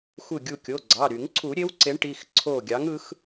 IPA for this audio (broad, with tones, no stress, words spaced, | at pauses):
xʷɯ˧˩ɡʲu˧˩kʲo˩˧˩ɡ͡ǀɑ˩˧˩ ɾy˨˩˦ŋǀʰu˨˩˦ɾʲe˨˥w ǀe˨˥ɳʈi˩˧˩x ǀʰo˧˩ɡʲɑ˨˥ŋ ɯ˨˥x